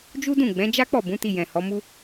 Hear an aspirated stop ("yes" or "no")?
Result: no